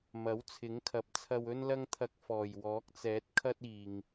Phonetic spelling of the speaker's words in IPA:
mɐ˨˥wt͡sʰɪ˨˥ŋkʰɐ˨˥p̚ t͡sʰɐ˧wɵ˥nlɐ˥ŋt̪ʰɐ˧k̚ fɔː˨˩jwɔː˨˥k̚t͡sɛː˨˥t̚ kʰɐ˥t̚iː˨ŋ

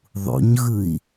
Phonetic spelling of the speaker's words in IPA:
ðˤṵɲɣɯi̯

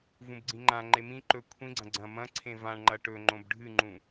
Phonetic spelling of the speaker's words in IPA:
vũbɡ͡ǀĩŋ͡ǃã ŋ͡ǃemĩ ǃɵ kʷʰĩɡ͡ǀɐ̃ ɡ͡ǀɐ̃ mɐ̃ ǀʰẽvãɳ ŋ͡ǃɐʈɵ ŋ͡ǃõbɖʱɨŋ͡ǃũ

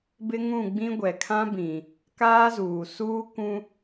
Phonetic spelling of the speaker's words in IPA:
bɪ˦ŋũ˦˨ɡ͡bĩ˦ ɡʷɛ˨kʰã˦bĩ˨ | kaː˦zuː˨ suː˦kʷũ˦

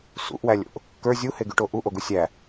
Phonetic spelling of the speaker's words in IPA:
sṵʔwælʲo̰ʔ | kə˞ zʲuheɡyʈo ʔuʔoɡu sʲæ

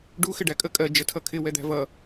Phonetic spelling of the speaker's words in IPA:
ɖu xɪɖækʼə kʼɜ d͡ʒətʰʌkʰɪ wɛd̪æ̤vʌ

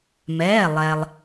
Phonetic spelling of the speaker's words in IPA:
mɛː˩˧˩lˠɛ˩lˠ

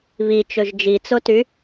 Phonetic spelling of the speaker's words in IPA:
βit͡ʃɵʒ d͡ʒit͡soty

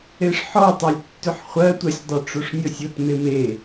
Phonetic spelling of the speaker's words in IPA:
eʂħɔtˤelʲtːʏħ χʷɜtʷɜsʲdˤʏ ʈ͡ʂoʂnʲɔsʲotmem e

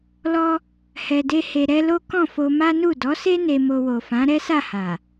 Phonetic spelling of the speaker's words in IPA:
lɔ˦ | hɛ˧de˦he˧ɾɛ˦ lo˦kɔ̃˦˨ fo˧ma˦nu˦˨ dɔ˨˦se˦ ne˧mo˧ wo˨fã˨˦ɾɛ˦sa˦˨ ha˨

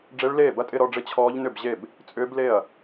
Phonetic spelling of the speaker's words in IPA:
ɖ͡ʐe˦˥ɭleː˥˩bɐ˥˧tʼɪ˥˧ ɾɔ˥˧ɖ͡ʐɪ˥˩ t͡ɕʰɔː˦˥ʎ nʏ˥˩bʑe˥˩b | t͡sʼʏː˦˥ble˥˩ɐ̯

